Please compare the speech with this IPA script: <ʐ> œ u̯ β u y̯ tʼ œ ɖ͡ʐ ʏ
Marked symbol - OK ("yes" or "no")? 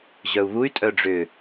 no